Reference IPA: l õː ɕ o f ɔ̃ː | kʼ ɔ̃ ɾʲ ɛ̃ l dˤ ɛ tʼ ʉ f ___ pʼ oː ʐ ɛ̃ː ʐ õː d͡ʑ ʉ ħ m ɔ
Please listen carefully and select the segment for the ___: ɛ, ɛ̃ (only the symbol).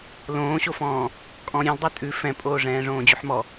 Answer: ɛ̃